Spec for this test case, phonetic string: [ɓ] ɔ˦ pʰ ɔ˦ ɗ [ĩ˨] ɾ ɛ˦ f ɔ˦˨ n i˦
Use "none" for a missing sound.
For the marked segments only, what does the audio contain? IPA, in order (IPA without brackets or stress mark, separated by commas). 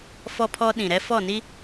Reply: f, ĩ˨